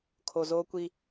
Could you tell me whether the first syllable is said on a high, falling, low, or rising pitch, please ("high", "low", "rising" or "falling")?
low